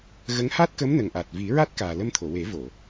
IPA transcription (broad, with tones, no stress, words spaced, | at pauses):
ɣə˧˥ŋ ha˦˥t̚kə˧˥mnə˨˩ŋ ʔa˨˩t̚vi˨˩˦ɹa˦˥t̚kaː˨˩ lə˧mt̪ʰo˨˩˨we˨˩˦vo˨˩˨